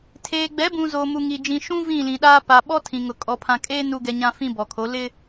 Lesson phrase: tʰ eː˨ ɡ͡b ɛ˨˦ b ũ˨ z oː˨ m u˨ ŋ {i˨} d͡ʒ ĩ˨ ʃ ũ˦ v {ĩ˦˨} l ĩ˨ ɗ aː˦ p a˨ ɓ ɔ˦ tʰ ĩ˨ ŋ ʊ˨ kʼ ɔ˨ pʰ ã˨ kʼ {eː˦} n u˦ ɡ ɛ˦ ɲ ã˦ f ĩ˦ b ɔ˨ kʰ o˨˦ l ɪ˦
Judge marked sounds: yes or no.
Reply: yes, yes, yes

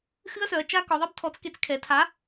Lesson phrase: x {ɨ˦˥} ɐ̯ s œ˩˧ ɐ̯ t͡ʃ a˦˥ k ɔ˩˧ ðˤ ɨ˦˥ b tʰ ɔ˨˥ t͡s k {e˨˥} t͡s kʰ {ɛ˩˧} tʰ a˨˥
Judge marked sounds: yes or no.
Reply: yes, yes, yes

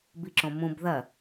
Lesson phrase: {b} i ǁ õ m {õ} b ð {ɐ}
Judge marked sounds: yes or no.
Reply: yes, no, yes

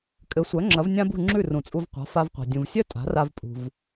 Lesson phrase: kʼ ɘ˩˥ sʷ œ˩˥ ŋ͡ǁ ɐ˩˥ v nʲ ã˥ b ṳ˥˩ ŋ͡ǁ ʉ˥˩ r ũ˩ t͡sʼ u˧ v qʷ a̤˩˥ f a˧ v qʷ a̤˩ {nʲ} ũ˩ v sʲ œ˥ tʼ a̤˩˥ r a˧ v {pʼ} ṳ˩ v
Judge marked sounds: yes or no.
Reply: no, yes

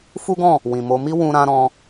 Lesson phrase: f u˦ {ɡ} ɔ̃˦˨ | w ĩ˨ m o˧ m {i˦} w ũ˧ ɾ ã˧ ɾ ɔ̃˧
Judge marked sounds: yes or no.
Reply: yes, yes

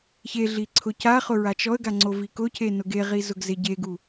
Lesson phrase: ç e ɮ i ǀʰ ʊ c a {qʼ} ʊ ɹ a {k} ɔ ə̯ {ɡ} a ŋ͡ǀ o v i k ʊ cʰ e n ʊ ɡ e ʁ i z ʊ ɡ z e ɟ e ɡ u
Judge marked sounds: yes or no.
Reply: no, no, yes

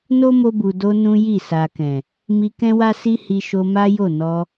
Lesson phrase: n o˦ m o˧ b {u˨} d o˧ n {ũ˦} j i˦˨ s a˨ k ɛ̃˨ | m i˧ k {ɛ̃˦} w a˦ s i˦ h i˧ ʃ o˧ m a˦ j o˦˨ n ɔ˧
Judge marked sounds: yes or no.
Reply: yes, yes, yes

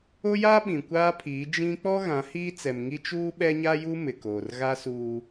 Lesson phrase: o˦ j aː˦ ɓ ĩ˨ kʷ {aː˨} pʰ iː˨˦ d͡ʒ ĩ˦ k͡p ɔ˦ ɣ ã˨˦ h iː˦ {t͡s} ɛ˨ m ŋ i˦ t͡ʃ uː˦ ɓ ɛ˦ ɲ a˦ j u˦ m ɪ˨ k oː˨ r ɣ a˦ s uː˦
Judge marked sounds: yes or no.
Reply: no, yes

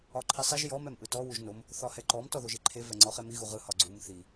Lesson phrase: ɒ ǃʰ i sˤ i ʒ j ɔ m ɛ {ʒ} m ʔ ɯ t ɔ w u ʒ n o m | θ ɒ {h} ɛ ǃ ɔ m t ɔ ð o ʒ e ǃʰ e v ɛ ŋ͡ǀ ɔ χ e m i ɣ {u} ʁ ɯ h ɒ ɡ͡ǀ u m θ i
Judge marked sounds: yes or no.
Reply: no, yes, yes

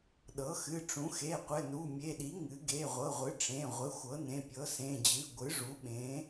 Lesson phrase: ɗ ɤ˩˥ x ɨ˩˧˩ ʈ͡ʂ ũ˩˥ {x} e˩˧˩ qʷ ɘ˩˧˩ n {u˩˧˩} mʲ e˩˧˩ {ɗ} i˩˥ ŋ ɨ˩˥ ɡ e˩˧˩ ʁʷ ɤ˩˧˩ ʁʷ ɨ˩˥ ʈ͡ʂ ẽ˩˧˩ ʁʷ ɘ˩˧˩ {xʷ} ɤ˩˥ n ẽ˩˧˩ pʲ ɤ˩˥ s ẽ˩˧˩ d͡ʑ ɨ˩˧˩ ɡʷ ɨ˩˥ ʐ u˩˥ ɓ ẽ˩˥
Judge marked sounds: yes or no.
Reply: yes, yes, yes, yes

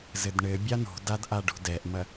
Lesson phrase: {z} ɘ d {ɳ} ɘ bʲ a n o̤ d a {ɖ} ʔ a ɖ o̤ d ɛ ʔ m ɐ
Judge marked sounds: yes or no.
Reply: yes, yes, no

